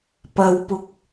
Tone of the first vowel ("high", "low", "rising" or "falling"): low